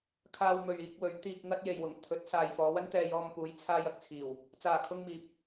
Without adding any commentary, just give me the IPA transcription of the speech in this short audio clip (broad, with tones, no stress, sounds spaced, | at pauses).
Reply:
kʰ aː˧ w m ɵ˨ ɥ iː˧ k̚ w ɵ˨˧ ɥ t̪ iː˧ k̚ ŋ ɐ˥ t̚ j e˨ j w ʊ˨˩ ŋ t̪ʰ ɵ˨˥ t̚ s aː˨ j f ɔː˨˧ w ɐ˥ n t̪ ɛː˧ j ɔː˧ m p uː˨˧ j t͡sʰ aː˧ j ɐ˨ k̚ t͡sʰ iː˨˩ w | t͡s aː˨˩ kʰ ʊ˧ ŋ m iː˨ p̚